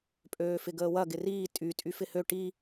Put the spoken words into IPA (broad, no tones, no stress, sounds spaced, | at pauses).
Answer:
pʼ øː f ɪ ɡ əː w ɐ ɡ ɪ r iː tʼ y tʼ y f ɪ h ø ʈ i